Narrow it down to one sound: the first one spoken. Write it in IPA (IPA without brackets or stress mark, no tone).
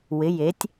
w